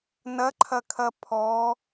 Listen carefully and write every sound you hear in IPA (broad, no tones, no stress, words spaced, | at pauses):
nɐǃʰɐkʰɐ pʰɔ